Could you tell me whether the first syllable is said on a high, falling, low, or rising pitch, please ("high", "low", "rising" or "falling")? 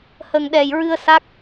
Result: low